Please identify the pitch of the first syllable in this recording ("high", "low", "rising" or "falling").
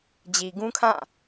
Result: low